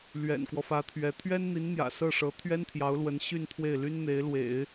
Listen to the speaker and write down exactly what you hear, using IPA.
l ɥ ɛ̰˨˩ n k w ɔ˦ f ä˧˥ t̪ʰ ɥ ɛ˧˥ t̪ʰ ɥ ɛ˥ n n̪ i˧˥ n n̪ j ä̰˨˩ s ɤ˥˩ ʂ ɤ˧˥ t̪ʰ ɥ ɛ˥ n t̪ʰ j ɑ˧˥ ʊ̯ l w ə˧˥ n ɕ y˥˧ n t̪ʰ w e˥˩ ɪ̯ l y˥ n n̪ e˧˥ ɪ̯ l w ḛ˨˩˦ ɪ̯

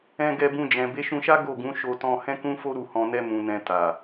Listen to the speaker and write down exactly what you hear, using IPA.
ɛ̃˧ ɡ ɛ˧ b ũ˧ d͡ʒ ɛ̃˨ b e˨˦ ʃ ũ˧ ʃ a˦ ɡ o˦˨ ɡ ũ˨˦ ʃ o˧ t ɔ̃˧ h ɛ̃˦ k ũ˦ f o˦ ɾ u˦˨ h ɔ̃˧ n ɛ˦ m ũ˧ n ɛ̃˧ t a˨

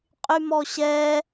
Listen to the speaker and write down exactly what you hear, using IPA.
qʼ y m ɔ ɕ ɛ

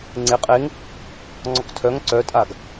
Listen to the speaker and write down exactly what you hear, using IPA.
ŋ͡ǀ e qʼ e ŋ | ŋ͡ǀ ɔ k tʰ œ ŋ ǀ œ tʼ a ɡ

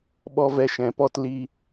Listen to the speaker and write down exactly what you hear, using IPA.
ɓ ɔ˦ v ɛ˧ ʃ ɛ̃˨˦ p ɔ˦ t l i˦

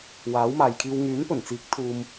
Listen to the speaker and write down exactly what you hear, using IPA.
w aː˨˥ w m aː˨ j kʰ iː˧ w ŋ yː˨˥ n p ɵ˨˩ n t͡s iː˨˥ k̚ t̪ʰ uː˨ m

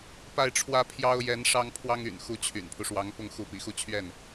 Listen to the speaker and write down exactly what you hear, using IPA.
p a˥˩ ɪ̯ ʈ͡ʂʰ w ä˥ pʰ j ɑ˥ ʊ̯ j ɛ˧˥ n ʂ ɑ˥ ŋ pʰ w ɑ˥ ŋ y̰˨˩ n x u˧˥ t͡ɕʰ y̰˨˩ n pʰ u˦ ʂ w ɑ˧˥ ŋ p ʊ˥˩ ŋ x u˧˥ p ḭ˨˩ x u˥˧ t͡ɕʰ ɥ ɛ˥˩ n

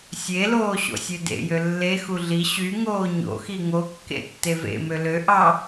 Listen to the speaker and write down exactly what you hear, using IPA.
sʲ e l oː ɕ o̰ sʲ ø d ḛ j ø lː e x u ɮ i ɕ y ŋ oː ɲ o̰ x i ŋ o kː ḛ tː e v ḛ m ø l ø ʔ ɑ

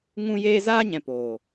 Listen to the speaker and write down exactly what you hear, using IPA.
ŋ ũ˦ j eː˦ z aː˦ ɲ ɛ̃˨ p oː˨

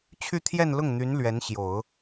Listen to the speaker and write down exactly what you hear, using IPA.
t͡ɕʰ y˥˧ t̪ʰ j ɛ˥˧ n l ʊ˥˩ ŋ n̪ y˧˥ n l ɥ ɛ˧˥ n ɕ j o˨˩˦ ʊ̯

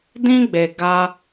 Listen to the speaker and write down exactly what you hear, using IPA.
d ĩ˦ ɡ͡b e˨ ɡ a˦

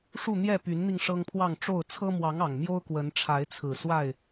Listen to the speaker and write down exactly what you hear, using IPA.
ʂ u˥˨ n̪ j ɛ˥˨ p y˨˦ n n̪ i˧ ŋ ʂ ɤ˦ ŋ pʰ w ɑ˥˨ ŋ ʈ͡ʂ o˥˨ ʊ̯ t͡sʰ ɤ˦ m w ɑ˨˦ ŋ ɑ˨˩ ŋ m j o˦ ʊ̯ k w ə˨˦ n ʈ͡ʂʰ a˨˦ ɪ̯ t͡sʰ ɹ̩˨˩ s w a˥˨ ɪ̯

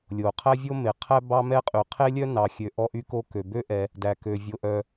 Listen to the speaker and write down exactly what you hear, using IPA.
lʲ o˩ qʰ æ˥ vʲ o˥ m e˩ qʰ æ˥ b ɑ˥ m ɛ˥ qʼ y˩ qʰ e˥ lʲ œ˥ n ɑ˩ xʲ ø˩ ʔ ɔ˥ ʔ y˥ k o˥ k ø˩ b ø˥ ʔ ɛ˩ | d æ˩ k ø˩ vʲ o˩ ʔ œ˩

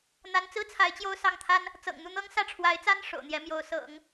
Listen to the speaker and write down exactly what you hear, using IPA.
n̪ a˧˥ n t͡s ɹ̩˥ t͡sʰ a˧˥ ɪ̯ t͡ɕ j o˥˧ ʊ̯ s ɑ˥˩ ŋ t̪ʰ a˥ n | t͡s ɤ̰˨˩ ŋ n̪ u˥˩ n̪ ɤ˥ ŋ s ä˥˩ ʈ͡ʂʰ w a˧˥ ɪ̯ t͡s a˥ n ʂ o̰˨˩ ʊ̯ n̪ j ɛ˧˥ m j o˧˥ ʊ̯ s ɤ̰˨˩˦ ŋ

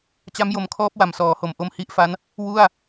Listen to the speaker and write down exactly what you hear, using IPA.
t͡ɕ a˦˥ m j o˨˩ m kʰ ɔː˦˥ p̚ w a˩˦ m s ɔː˩˦ h o˩˦ m ʔ o˧ m h i˦˥ ʔ f a˦˥ n | w u˥˩ a̯

